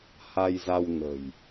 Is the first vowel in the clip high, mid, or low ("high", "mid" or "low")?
low